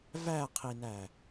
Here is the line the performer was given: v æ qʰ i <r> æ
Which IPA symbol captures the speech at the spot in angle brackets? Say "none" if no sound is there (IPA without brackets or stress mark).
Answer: n